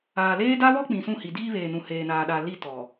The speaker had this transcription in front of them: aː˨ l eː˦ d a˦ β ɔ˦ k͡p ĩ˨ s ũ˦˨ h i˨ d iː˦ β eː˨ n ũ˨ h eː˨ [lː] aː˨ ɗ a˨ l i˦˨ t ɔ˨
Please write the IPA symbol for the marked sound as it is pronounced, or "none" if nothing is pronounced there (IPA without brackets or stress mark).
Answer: n